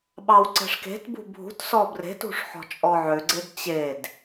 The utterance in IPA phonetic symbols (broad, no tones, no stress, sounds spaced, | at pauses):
ɓ ɑ w ǀ ɛ̤ ʂ k e̤ t b ṳ bʱ ṳ t s ɔ b r e̤ t ṳ ʂ ħ ɔ̤ t͡ʃʼ ɔ ʕ ø ɡ͡ǀ e d t͡ɕ e d